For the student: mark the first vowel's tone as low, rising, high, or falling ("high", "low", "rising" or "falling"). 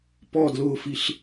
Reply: falling